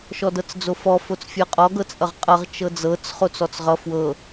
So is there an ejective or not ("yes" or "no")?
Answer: yes